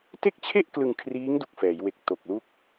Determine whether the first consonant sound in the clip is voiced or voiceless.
voiceless